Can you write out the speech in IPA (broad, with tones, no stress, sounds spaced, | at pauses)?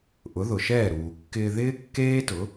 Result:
ʔ ʊ˩˥ ð ʊ˩ ʃ ɛː˥˩ ɾ uː˩ kː ɪː˧ ð ɪː˥ kː eː˥ t ʊ˩˥